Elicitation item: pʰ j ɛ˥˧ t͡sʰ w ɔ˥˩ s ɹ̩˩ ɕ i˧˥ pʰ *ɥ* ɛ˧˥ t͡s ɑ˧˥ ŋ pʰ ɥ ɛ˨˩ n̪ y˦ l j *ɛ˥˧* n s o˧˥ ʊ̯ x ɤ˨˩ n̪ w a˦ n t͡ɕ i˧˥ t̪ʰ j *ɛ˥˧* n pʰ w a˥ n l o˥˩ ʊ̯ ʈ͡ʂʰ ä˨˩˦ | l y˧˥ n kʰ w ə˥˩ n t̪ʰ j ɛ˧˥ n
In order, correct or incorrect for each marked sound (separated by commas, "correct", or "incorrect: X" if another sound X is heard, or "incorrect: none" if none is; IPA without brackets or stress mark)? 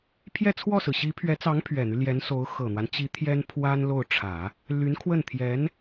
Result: correct, incorrect: ɛ˧˥, incorrect: ɛ˥